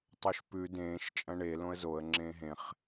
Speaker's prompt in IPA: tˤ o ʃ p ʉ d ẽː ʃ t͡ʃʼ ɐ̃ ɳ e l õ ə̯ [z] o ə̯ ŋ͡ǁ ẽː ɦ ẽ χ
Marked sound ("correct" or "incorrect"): correct